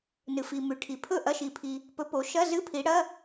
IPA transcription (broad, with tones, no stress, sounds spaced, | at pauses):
n ɨ˩ f i˩ m ʉ˩ ʈʰ i˩ pʰ ɵ˥˩ ʔ ɐ˧˥˧ ʃ i˩ pʰ i˩ | p ɵ˨˥ p o˩˧ ʃ ɐ˧˥˧ z ɨ˧˥˧ pʰ i˩˧ ɽ ɐ˧˥˧